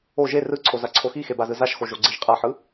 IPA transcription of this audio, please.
o ʒ e r ɯ ǀʰ o z a ǀʰ o x i x e b a z ɯ z a ʃ x o ʒ o ɡ͡ǀ i ʒ qʼ a ħ ɯ

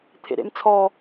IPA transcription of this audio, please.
t̪ʰ ḛ ɾ ḛ m t͡sʰ ɔ

